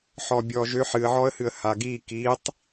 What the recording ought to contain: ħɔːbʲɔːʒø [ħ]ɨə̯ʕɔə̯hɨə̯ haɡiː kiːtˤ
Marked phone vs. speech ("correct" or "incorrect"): correct